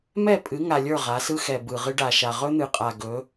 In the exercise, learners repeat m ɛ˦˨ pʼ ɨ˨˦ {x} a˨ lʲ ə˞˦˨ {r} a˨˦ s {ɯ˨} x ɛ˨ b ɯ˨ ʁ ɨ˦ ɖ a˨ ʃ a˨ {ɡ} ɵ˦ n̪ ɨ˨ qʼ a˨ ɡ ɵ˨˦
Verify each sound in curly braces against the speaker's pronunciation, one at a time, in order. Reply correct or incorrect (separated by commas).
incorrect, incorrect, incorrect, incorrect